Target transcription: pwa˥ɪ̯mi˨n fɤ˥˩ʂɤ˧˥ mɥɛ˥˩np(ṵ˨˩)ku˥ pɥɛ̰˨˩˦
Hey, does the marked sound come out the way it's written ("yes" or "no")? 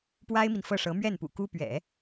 yes